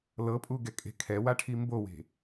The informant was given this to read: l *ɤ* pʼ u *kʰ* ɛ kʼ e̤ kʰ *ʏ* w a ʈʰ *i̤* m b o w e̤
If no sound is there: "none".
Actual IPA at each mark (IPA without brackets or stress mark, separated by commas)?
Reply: ɤ, ɡ, ɛ, i